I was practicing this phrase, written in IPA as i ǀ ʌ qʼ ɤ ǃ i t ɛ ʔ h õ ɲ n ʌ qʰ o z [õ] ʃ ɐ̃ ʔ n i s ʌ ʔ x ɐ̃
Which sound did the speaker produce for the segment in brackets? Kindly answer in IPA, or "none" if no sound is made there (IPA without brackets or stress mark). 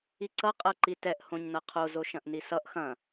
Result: o